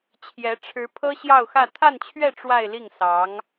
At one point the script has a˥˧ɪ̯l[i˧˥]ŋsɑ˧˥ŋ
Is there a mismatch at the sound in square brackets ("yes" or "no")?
yes